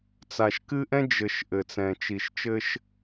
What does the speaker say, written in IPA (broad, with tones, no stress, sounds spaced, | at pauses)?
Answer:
t͡s a˨ ʃ k ɨ˦ ʔ ɛ̃˦ d͡ʒ ɘ˨ ʃ ʔ ɘ˨ t͡s ɛ̃˨ t͡ʃ i˨ ʃ t͡ʃ ɘ˦ ʃ